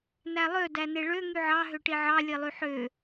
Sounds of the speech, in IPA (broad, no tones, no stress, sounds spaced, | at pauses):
n æ lˠ ø d æ n e ɭ ø ŋ y ʕ ɑ ɦ ø ʈ i ʕ ɑ lʲ e lˠ y ħ ø